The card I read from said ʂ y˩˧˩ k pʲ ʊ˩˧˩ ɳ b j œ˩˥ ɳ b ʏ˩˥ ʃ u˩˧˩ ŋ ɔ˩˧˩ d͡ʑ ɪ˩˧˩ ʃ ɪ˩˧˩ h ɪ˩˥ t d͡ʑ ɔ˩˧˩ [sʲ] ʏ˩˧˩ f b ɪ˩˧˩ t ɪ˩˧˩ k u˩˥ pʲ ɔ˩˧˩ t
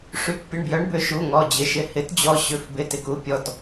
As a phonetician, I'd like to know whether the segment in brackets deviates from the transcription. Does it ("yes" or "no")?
yes